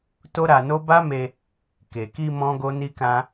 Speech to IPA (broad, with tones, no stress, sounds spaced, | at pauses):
t o˦ ɾ a˧ n o˦ b a˦ m e˧ | k e˨ k i˧ m ɔ̃˦ ɡ o˦ n i˦ k ã˦